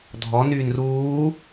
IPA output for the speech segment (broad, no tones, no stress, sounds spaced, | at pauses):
dʱ ɔ n yː n r uː